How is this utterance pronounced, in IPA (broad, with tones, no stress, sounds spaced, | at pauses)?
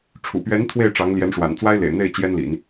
ʈ͡ʂʰ ṵ˨˩ p ɥ ɛ˧˥ n t̪ʰ w e˥˩ ɪ̯ ʈ͡ʂ ɑ˧˥ ŋ l j ɛ˧˥ n ʂ w a̰˨˩ n t͡s w a˥ ɪ̯ l ḛ˨˩ ɪ̯ n̪ e˥˩ ɪ̯ t͡ɕ j ɛ˥ n l ḭ˨˩˦ n